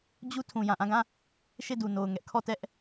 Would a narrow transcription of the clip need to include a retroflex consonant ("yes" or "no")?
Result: no